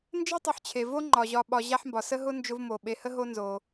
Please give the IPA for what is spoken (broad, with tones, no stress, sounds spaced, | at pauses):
n d͡ʒ e˥ tˤ ʊ˨ ħ t͡ɕʰ e˩ v o˥ ŋ͡ǃ ɒ˩ ʑ ɒ˨ ɓ ɒ˨ ʑ a˦ ħ m b ɒ˩ s ə˥ ɦ ʊ˥ n d͡ʒ ʊ˦ v m o˩ ɓ e˨ h ə˦ ɦ o˦ n z o˩